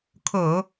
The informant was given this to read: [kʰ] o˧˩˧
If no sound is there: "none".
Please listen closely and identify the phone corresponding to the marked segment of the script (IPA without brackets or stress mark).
kʰ